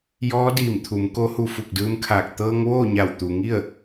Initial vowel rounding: rounded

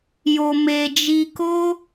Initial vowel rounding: rounded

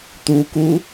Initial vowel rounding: rounded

